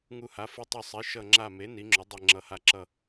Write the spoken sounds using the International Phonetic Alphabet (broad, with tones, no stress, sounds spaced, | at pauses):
ŋ u˧˩ h a˩˥ f ɯ˧˩ tˤ u˧˩ sˤ i˩˥ ʃ ʌ˧˩ ŋ͡ǁ a˧˩ m e˩˥ n i˩˥ ŋ͡ǁ o˩˥ dˤ e˧˩ ŋ͡ǁ ʌ˩˥ h a˧˩ ǁ ʌ˧˩